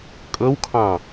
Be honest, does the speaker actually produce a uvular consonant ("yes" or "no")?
no